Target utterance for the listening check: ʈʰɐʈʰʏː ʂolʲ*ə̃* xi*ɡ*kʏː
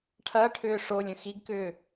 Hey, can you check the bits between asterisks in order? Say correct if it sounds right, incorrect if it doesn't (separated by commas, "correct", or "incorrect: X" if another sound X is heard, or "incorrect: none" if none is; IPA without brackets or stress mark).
correct, correct